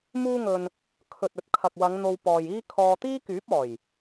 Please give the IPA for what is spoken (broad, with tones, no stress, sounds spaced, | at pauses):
m uː˥ ŋ ɵ˧ n | kʰ ɵ˨ t̚ ɵ˨ t̚ kʰ ɐ˨ k̚ w ɐ˨˧ ŋ n̪ o˧ w p ɔː˨ j iː˥ kʰ ɔː˧ t̪ iː˥ k yː˨˥ p̚ ɔː˨˩ j